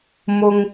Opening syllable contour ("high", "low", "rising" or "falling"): low